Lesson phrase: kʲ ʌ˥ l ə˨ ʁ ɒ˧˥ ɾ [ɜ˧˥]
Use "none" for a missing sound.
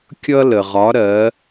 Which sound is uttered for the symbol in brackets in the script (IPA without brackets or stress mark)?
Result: ɜ˧˥